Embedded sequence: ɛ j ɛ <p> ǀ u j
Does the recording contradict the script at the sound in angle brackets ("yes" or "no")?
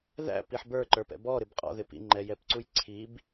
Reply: no